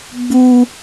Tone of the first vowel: high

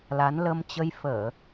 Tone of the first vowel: rising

